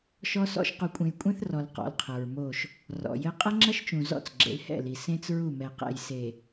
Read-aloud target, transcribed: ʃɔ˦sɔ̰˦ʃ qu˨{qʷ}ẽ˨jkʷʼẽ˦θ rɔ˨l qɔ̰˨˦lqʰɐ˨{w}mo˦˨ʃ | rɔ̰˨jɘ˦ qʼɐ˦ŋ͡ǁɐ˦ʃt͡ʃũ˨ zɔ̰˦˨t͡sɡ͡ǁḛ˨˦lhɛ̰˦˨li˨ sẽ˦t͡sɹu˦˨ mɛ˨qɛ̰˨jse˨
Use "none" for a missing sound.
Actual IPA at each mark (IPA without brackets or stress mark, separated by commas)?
kʷʼ, ɹ